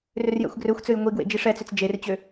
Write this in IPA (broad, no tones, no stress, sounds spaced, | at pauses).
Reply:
r ʏ r j ɛ̰ xʷ ɡ r ø xʷ t͡s ø j ŋʷ i ɡ w ḛ d͡ʒ i ʂ ɛ t͡s ʏ t͡s d͡ʒ e r t͡ɕ ø